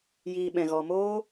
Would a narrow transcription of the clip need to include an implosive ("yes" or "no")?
yes